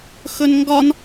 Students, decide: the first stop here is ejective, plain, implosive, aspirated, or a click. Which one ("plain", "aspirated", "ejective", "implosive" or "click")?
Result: plain